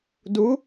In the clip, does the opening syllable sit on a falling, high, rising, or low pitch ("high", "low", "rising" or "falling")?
rising